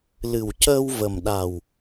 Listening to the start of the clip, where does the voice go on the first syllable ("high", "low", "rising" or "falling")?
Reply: low